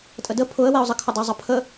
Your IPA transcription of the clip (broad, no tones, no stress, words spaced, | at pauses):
tʼədə pʰʊə̯weʊ̯zˤəkʰʊ dˤezˤəpʰə